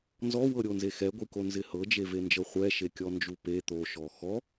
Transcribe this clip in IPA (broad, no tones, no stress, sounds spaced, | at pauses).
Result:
n z ɔ w ɤ ɾʲ o n z e x ɛ ɡʷ i k o n z ɪ h ɤ d͡ʒ e v e n d͡ʒ ɤ χʷ ɛ ʃ e kʲ ɔ n d͡ʒ u p e t̪ o ʃ ɔ x ɔ